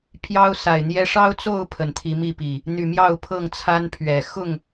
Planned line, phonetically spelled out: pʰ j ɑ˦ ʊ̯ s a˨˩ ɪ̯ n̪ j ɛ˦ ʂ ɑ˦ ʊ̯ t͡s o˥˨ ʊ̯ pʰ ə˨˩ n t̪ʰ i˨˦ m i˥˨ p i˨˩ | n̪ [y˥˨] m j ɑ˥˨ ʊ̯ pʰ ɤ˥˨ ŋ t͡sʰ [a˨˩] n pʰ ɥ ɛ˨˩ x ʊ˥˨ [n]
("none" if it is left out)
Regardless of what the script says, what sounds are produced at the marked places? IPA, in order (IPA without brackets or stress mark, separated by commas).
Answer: y˨˩, a˦, ŋ